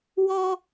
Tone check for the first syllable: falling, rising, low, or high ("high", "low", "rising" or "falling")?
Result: high